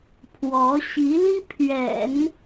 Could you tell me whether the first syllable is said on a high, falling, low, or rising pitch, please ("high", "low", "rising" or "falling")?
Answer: rising